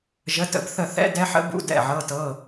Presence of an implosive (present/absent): absent